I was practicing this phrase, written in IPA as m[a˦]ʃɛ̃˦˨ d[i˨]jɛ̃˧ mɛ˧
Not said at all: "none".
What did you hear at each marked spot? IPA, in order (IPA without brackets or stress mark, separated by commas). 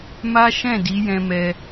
a˦, i˨˦